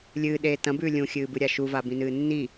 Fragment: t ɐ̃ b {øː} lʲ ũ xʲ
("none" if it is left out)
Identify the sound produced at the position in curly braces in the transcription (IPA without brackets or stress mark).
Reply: ʉː